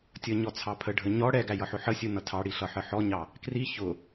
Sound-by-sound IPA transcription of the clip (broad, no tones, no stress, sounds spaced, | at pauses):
tʲ ʌ ɲ ɔ t͡sʰ ɑ pʰ ə ɖʱ ə ɲ ɔ ɽ ɛ ɡ æ j ʌ ħ ʊ ħ ə sʲ u n ʌ tʰ ɑ ɽ i ɬ ʌ ħ ə ħ ɔ ɲ ɑ | k r i ç ʊ